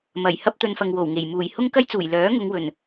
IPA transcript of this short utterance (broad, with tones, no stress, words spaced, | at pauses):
mɐ˨˩j hɐ˥p̚t̪ɵ˧nfɐ˨ŋ wo˨˩wŋe˨˩j muː˨˩jhʊ˥ŋkɐ˥jt͡suː˨˩j lœː˨˥ŋʊ˨˧ŋ wɵ˨˩n